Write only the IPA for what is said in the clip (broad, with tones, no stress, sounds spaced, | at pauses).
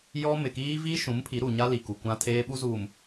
j ɔ˦ m ɪ˨ k iː˦ v i˦ ʃ ũ˨˦ m pʰ i˨˦ ɾ u˨ ɲ a˦ l i˨ k u˨ kʷ ã˦ tʰ eː˦ ɓ u˦ z uː˨ m